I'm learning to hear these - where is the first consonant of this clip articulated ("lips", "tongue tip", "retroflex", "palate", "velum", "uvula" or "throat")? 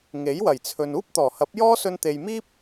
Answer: velum